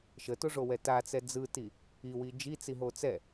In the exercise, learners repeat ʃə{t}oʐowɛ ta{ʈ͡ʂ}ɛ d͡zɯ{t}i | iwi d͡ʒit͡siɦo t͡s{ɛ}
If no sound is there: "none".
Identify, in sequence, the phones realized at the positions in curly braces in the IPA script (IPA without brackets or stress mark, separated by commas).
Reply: t, t͡s, t, ɛ